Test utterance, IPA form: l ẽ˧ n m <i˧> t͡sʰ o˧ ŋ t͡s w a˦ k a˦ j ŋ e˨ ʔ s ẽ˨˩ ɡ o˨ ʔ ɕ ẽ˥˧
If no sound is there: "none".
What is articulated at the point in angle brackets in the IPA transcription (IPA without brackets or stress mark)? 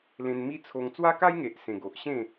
i˦